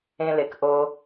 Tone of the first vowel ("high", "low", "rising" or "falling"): low